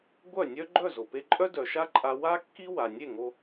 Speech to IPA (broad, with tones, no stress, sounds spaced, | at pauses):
ɡʷ œ˥˩ nʲ œ˥ ɡ͡ǃ œ˥˩ z o˩ p e˧ ǃʼ œ˥ d œ˩ ʃ a˥ ǃʼ a˧ w a˥ kː i˥ w a˩ nʲ e˥˩ ŋ o˧